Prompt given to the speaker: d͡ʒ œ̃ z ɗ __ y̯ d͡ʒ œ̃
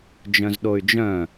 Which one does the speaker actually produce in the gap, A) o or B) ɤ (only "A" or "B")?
A